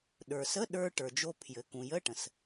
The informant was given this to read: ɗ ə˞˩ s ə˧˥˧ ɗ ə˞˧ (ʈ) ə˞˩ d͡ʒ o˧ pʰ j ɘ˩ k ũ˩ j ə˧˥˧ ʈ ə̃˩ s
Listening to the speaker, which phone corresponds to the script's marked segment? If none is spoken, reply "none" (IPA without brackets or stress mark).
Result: ʈ